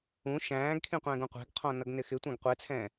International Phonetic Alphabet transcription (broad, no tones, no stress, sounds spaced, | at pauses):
ũ ʃ æ̃ː ɡ kʰ ĩ qʷ ɛ̃ː ɡ ũ qʷ æ̤ ɡ qʰ ɔ̃ n ʌ ɡ n ɪ x ɪ tʷ æ̃ ɡ qʷ ɛ t͡sʰ ɛ̃ː